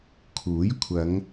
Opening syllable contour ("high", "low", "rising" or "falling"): rising